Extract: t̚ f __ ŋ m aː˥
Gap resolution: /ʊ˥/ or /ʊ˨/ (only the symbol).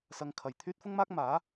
ʊ˥